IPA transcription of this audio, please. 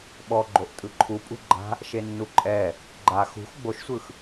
ɓ ɔ ɡ͡ǃ o ʔ tʼ ɯ ǃʰ u pʼ ṳ ɡ͡ǃ a̤ | ʃ e nː u ǃʼ ɛ | ɡ͡ǃ a x ṳ x ɡ͡b o ʃ sʷ ɯ x

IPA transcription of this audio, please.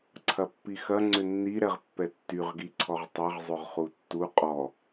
ǀʰ ɐ pː i x ɐ ŋ͡ǀ ʏ nː i ɾ ɛ ʁ pː ɛ tː y ʁ ɡ i ǀʰ ɔ ʁ tˤ ɐ ʁ zˤ ʏ ʁ χ u tː u qʼ ɔ

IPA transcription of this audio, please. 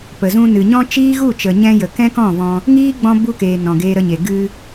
p ə˨ z ũ˧ n ɨ˨ ɲ ɔ̃˦ t͡ʃ iː˦ ɣ u˦˨ t͡ʃ ə˨ ɲ ɛ̃˧ j ə˨ k ɛ̃˦ k ɔ̃˦˨ v ɔ̃˧ | ŋ iː˦ ɡ͡b ɔ̃˧ b u˧ k eː˨ n ɔ̃˨ ɡ eː˧ ɾ ə˧ ɲ e˨ ɡ ɨ˧

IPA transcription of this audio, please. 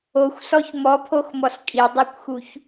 o xʷ s ɔ ç m ɔ pʰ o x m ɔ s kʼ i dˤ e kʷ x u ç

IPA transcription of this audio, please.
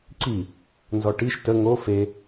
ǀ i | n z ɔ ʈ i ʃ t ə ŋ o f e

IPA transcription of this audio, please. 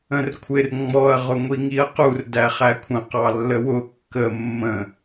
ə̃ r kʷʰ ɪ r ŋ͡m ɔ ɐ̯ ʁ ʊ ŋʷ i ŋ i ɐ̯ q u r d æ χ æ kʷʰ ə̃ q ɑ lː ə w ʊ kː ə mː ə̃

